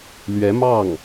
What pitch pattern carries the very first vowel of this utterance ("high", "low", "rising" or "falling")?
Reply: rising